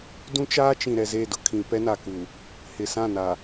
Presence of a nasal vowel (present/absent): present